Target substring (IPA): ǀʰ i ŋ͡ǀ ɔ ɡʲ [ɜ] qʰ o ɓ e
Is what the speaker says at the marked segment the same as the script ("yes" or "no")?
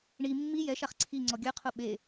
yes